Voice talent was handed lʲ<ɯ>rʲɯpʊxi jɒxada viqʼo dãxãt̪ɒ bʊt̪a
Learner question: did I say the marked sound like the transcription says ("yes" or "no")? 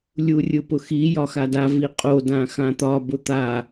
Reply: no